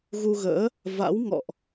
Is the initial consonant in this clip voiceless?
no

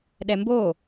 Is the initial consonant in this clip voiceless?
no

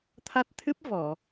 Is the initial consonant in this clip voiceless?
yes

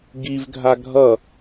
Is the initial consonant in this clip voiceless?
no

